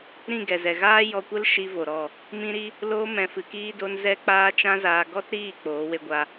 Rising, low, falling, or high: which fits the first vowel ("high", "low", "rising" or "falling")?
falling